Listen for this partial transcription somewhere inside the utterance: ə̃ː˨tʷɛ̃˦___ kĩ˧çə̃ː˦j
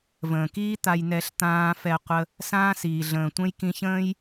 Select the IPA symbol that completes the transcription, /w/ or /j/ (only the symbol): j